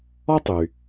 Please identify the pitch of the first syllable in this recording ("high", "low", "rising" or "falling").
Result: high